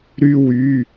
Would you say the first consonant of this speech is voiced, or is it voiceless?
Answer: voiced